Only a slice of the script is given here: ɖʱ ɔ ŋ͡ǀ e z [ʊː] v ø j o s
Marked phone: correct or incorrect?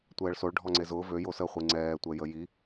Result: correct